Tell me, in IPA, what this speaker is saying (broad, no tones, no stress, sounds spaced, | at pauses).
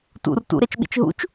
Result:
t ṵ r t ṵ ɾ e t͡ʃ ɓ ḭ t͡ʃ ɦ ṵ t͡ʃ